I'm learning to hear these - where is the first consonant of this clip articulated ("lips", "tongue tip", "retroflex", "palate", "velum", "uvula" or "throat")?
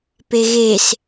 lips